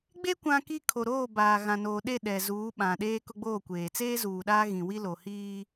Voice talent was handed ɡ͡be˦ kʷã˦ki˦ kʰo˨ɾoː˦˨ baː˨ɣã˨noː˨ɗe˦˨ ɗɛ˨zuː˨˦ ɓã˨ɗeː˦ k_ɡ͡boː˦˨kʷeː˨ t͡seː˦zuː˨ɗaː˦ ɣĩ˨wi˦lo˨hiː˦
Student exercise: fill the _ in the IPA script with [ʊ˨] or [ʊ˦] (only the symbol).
ʊ˦